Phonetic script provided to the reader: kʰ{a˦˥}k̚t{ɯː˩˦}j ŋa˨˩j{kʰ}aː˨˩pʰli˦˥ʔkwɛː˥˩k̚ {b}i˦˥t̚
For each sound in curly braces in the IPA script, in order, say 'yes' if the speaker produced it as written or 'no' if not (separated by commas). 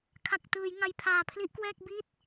no, yes, no, yes